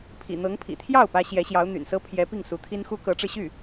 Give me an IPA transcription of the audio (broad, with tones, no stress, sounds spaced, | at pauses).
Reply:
pʰ ḭ˨˩ n̪ ɤ˧˥ ŋ pʰ ḭ˨˩ t̪ʰ j ɑ˥˩ ʊ̯ p ä˥ ɕ j ɛ˧˥ ɕ j ɑ˧˥ ʊ̯ n̪ y̰˨˩ n s ɤ˥ pʰ j ɛ˧˥ p i˥˩ ŋ s u˧˥ t̪ʰ i˥ n x u˥ k ɤ˧˥ ʈ͡ʂ ɻ̩˧ ɕ y˥˩